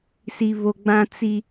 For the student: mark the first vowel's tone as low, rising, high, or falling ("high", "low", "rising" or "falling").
high